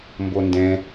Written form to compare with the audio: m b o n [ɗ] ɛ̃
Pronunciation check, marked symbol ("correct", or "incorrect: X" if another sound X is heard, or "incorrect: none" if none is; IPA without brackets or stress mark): incorrect: d